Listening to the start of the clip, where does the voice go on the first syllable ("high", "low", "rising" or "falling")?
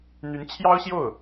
rising